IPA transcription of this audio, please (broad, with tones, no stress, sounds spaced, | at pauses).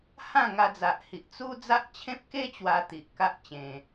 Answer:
h ã˥˧ ŋ a˧ d͡z a˨ ʔ h i˨ ʔ t͡s u˦ d͡z a˦ ʔ t͡ɕʰ ẽ˦ p̚ k e˦ t͡ɕ w a˧ t̪ i˨ ʔ k a˦ ʔ t͡ɕ ẽ˧